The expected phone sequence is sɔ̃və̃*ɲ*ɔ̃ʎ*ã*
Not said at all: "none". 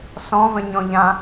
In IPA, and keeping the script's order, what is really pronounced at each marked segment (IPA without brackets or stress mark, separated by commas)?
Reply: ɲ, ã